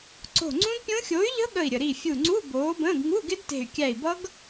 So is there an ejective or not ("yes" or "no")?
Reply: no